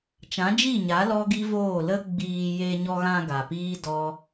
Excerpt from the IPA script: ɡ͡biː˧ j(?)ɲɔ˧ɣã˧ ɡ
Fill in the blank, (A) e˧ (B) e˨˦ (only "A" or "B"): A